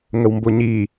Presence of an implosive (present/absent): absent